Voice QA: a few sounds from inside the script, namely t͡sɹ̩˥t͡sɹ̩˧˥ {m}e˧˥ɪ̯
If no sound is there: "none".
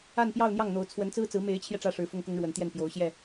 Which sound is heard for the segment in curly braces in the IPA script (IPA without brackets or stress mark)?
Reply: m